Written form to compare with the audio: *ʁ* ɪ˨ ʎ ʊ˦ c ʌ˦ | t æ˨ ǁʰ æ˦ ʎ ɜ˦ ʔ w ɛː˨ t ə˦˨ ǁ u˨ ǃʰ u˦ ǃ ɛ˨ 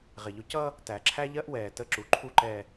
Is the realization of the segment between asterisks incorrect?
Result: no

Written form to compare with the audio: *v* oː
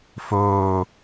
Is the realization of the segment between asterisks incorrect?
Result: yes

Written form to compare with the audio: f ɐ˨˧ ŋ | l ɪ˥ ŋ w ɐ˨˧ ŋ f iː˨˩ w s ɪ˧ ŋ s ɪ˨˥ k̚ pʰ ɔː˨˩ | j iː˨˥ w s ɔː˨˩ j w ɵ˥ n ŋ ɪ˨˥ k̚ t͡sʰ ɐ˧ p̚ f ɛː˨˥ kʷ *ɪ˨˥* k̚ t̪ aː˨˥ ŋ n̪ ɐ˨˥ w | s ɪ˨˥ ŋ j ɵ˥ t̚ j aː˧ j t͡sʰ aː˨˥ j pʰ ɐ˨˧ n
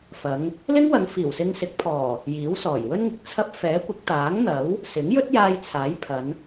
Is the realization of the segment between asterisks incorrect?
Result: no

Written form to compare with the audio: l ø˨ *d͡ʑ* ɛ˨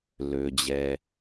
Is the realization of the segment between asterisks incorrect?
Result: no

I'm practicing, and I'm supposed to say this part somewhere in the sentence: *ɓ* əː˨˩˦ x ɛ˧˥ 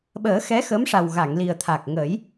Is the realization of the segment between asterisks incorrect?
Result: no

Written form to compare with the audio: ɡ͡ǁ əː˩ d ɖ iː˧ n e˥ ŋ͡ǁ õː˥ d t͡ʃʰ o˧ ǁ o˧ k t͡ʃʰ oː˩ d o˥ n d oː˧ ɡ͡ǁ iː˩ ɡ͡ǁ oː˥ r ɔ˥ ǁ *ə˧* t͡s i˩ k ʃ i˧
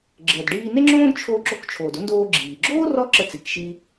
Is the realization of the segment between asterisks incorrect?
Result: no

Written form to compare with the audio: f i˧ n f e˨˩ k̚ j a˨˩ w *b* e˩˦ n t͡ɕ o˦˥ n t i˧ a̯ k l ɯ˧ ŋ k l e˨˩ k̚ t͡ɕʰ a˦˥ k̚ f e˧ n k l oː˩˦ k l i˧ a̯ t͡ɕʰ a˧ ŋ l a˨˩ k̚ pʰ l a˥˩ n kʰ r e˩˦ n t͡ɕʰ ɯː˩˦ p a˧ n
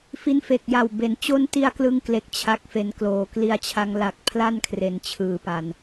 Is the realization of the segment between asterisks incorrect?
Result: no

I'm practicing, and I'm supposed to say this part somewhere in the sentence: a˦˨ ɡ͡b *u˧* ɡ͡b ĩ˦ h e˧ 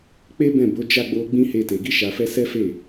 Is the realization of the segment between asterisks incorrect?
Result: yes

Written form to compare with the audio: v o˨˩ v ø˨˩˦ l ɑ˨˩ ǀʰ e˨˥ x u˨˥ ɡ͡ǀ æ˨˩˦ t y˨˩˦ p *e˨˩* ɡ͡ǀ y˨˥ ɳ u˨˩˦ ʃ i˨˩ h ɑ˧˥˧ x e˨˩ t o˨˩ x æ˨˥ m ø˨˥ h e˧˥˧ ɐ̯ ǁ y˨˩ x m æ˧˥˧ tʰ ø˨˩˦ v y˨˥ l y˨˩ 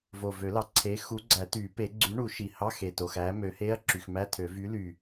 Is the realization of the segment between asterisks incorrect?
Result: yes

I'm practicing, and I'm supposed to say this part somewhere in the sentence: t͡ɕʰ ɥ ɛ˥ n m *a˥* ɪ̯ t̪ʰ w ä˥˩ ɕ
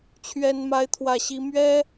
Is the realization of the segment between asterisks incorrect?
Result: no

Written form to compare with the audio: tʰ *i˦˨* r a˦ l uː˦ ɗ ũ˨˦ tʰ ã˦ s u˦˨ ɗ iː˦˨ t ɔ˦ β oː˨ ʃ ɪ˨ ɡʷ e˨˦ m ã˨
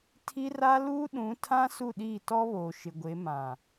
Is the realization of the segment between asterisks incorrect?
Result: yes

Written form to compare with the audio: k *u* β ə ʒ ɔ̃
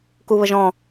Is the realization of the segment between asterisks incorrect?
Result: no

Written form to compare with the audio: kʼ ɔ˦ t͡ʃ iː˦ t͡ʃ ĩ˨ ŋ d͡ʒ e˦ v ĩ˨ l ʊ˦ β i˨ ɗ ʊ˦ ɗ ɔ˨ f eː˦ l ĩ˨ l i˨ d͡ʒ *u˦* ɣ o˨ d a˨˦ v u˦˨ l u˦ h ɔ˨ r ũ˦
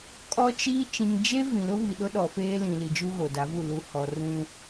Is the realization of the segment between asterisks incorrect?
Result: no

